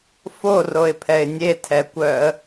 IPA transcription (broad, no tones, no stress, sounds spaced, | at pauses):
f o r o ɪ̯ pʰ ɛ ɪ̯ nʲ e tʰ ɛ kʷ œ ə̯